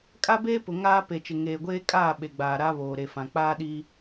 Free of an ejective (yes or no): no